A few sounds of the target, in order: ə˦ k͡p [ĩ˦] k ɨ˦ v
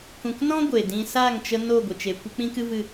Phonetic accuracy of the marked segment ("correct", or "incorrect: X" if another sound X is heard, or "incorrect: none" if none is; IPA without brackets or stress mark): correct